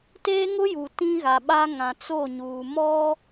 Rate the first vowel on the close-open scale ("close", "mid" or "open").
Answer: mid